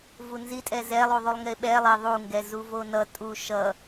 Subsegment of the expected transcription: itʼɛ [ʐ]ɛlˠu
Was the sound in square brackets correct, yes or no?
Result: no